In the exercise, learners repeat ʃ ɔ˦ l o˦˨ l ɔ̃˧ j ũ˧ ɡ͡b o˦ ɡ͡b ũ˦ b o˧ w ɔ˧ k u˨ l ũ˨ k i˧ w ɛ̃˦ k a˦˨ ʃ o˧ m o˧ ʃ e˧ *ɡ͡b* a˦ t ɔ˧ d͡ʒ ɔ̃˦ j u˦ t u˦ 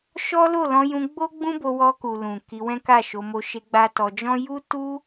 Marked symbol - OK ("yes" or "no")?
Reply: yes